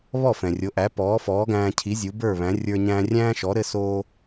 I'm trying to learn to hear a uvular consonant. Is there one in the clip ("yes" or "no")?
no